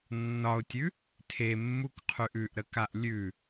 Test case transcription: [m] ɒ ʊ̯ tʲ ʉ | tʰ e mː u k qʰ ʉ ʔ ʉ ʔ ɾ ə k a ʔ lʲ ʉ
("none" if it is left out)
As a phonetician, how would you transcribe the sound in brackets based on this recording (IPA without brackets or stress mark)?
nː